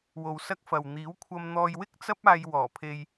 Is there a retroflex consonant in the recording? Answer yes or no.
no